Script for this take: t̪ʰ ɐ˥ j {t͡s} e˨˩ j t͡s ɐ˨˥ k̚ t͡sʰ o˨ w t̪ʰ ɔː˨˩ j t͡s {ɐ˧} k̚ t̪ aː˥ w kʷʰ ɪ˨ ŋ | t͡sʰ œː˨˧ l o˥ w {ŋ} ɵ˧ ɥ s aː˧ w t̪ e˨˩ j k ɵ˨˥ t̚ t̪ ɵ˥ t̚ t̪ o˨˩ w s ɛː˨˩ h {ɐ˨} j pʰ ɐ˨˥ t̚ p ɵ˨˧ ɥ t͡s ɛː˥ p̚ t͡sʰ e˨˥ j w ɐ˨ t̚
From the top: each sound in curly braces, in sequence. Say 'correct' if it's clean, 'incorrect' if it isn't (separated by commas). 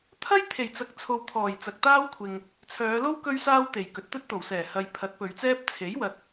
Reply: incorrect, incorrect, incorrect, correct